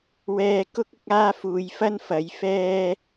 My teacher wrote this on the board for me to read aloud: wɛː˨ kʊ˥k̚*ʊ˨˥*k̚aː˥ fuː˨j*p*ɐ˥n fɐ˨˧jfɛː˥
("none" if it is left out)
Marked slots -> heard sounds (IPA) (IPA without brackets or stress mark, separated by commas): ʊ˨˥, f